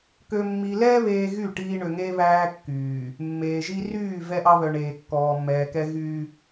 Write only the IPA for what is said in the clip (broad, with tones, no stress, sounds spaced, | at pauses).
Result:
k ø˨ mː i˨ l ɛː˦ β eː˦ ɣ y˦˨ ʈ iː˦ ɳ ø˨ ŋ eː˦ β æː˦ kː yː˨ | mː eː˨ ʒ i˦ r yː˦˨ v ɛ˦ ʔ ɑ˦ β œ˨ ɳ eː˨ kː ɔː˨ mː ɛː˨ k ɛ˦ ɣ yː˦